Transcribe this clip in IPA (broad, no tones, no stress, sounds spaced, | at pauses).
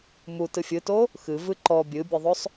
m u t ɨ fʲ ɨ t o | x ɨ v ɨ ǃ ɔ bʲ ɨ bʲ ɨ ðˤ o sˤ